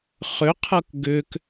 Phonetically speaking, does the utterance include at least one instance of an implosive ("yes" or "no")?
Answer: no